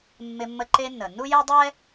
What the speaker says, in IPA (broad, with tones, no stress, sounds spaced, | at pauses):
mː ɪ˧ mː ə˧ ǃ e˧ nː ə˩ nː u˥ j e˥ dˤ ɛ˥